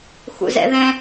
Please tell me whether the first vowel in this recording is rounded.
yes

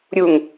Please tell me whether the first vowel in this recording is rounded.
yes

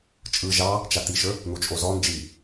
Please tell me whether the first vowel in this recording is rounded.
no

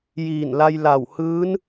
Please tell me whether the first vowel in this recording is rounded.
no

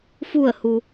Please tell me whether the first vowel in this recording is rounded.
yes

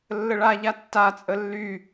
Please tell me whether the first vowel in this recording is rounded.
no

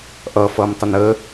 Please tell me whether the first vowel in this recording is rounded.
no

